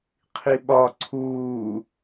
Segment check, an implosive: present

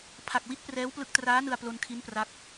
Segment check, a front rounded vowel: absent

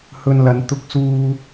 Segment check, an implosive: absent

